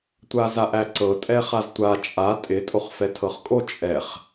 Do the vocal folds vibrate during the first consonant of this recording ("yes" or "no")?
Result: no